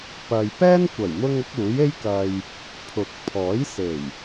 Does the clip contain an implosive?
no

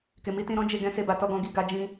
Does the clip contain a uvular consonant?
no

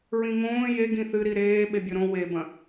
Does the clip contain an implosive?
yes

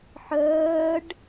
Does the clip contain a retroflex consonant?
yes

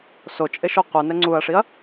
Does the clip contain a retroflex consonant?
yes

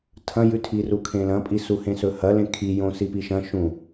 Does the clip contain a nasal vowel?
yes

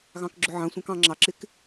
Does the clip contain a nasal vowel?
yes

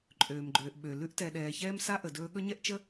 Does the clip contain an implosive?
yes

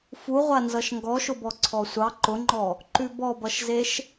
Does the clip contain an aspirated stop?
yes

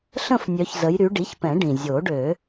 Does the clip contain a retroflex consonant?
yes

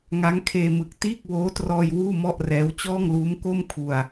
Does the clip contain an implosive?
no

